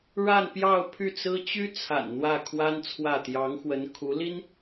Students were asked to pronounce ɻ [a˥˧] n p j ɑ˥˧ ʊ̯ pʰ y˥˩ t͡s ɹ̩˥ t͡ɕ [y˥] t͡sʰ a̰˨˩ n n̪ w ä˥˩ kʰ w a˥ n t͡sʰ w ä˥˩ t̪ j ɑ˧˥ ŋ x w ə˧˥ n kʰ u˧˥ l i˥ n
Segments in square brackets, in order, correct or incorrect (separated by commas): correct, correct